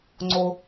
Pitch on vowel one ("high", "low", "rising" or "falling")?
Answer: high